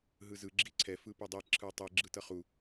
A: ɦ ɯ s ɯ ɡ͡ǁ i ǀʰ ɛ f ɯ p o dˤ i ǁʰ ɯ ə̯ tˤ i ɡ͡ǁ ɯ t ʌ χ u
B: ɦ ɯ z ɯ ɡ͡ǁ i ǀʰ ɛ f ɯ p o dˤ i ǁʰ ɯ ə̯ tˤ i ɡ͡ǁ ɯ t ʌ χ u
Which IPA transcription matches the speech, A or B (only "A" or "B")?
B